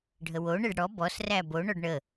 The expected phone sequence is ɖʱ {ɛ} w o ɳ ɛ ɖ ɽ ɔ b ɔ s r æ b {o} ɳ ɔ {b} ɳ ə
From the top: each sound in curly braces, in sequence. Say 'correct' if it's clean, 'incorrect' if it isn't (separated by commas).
incorrect, correct, incorrect